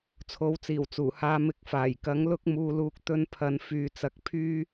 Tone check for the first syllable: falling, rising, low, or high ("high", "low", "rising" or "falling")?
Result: rising